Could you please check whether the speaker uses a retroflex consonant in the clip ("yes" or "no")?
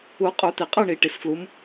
yes